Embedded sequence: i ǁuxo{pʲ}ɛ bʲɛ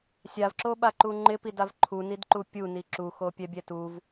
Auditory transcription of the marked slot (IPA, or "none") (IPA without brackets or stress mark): pʲ